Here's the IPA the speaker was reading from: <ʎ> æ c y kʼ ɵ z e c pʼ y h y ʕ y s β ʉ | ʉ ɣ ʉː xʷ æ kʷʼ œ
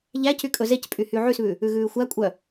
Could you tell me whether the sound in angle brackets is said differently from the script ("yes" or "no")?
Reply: no